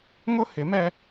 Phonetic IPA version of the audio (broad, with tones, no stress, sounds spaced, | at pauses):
ŋ ʊ˦ h ɪ˨˦ m ɛ˦